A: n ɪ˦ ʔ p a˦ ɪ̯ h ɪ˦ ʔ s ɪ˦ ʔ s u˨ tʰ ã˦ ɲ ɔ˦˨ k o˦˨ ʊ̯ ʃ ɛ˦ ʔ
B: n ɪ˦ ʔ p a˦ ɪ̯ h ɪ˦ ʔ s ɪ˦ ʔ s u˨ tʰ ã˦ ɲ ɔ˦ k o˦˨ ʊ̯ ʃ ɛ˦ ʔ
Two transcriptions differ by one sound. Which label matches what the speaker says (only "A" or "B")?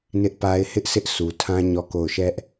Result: A